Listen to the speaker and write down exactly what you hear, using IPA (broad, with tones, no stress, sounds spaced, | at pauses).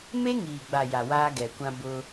m e˦ ŋ iː˨ ɡ͡b a˨ j a˨ w aː˦ ɡ ɛ˨ kʷ ã˦ b ʊ˦